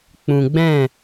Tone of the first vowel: low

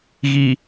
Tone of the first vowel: low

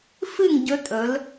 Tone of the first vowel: falling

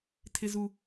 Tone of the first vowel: low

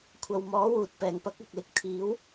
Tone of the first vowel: low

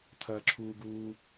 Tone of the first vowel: low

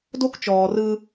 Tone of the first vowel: high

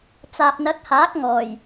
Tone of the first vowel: low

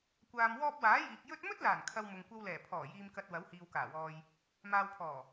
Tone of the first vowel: low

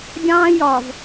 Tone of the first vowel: high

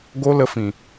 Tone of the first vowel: high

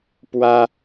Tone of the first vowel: high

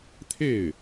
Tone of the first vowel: falling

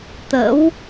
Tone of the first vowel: rising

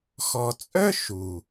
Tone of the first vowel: low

